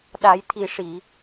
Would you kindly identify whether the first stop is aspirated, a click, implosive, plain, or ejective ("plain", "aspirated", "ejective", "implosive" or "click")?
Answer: implosive